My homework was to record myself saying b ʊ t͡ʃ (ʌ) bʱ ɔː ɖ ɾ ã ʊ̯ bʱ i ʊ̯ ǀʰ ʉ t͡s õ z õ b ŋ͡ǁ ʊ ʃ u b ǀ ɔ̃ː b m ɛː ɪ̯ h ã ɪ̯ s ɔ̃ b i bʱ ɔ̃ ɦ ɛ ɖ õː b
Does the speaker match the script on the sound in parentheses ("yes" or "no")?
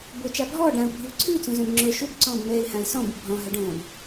no